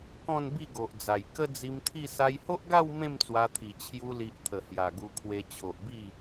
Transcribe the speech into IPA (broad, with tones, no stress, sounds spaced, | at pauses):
k ɔ̃˥˧ n b i˥˧ ɡ o˨ ʔ d͡z a˨˩ j k ə˦ d͡z i˧ m t̪ʰ i˥˧ s a˧ j h o˦ ʔ ɡ a˥˧ w m ẽ˥˧ m t͡s w a˧ t̪ʰ i˨˩ t͡ɕʰ j u˧ l i˨ ʔ t̪ʰ ə˨˩ h j a˨˩ ɡ u˧ kʰ w e˧ t͡ɕʰ o˨ ʔ b i˥˧